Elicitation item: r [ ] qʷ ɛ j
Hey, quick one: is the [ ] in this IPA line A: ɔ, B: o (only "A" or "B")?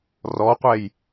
A